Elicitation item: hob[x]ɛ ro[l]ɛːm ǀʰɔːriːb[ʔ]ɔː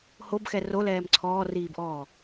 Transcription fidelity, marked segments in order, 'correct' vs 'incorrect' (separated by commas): correct, correct, correct